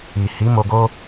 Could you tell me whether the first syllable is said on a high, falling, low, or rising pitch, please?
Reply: low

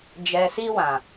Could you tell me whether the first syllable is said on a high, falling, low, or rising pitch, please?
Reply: low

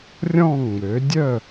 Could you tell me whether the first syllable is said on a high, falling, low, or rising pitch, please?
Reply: falling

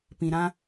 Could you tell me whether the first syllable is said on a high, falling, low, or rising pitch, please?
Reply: low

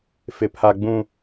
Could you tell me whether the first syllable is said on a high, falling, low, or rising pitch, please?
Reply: low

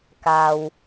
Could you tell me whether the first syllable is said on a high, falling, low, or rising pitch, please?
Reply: low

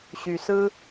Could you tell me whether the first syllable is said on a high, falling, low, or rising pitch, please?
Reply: low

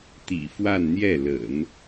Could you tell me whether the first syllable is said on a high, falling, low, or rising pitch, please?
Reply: low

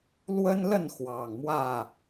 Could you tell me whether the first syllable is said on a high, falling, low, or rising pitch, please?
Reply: high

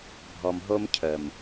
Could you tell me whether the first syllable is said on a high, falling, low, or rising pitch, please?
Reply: low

